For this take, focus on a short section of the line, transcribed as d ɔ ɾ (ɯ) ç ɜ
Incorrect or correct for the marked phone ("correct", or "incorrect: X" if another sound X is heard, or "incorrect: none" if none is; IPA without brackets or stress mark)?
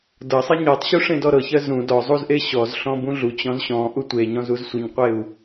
incorrect: ɤ